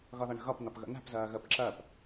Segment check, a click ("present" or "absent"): present